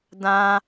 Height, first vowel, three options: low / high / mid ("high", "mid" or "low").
low